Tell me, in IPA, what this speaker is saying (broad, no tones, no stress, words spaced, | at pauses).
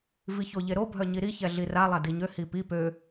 viçoʎeɾo bʱœɲiɾi çɛɮira lˠadiɲø hipi pø